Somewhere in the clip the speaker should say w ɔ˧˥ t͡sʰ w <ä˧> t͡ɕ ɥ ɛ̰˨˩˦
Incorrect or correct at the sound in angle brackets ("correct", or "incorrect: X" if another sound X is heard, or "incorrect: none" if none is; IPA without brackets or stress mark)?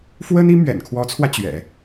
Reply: correct